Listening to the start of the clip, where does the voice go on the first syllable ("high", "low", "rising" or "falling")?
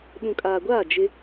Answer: low